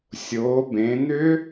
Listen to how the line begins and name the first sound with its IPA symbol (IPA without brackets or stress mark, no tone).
sʲ